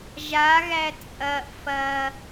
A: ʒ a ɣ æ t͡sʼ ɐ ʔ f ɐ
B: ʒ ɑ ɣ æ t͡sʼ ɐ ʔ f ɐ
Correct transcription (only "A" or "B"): A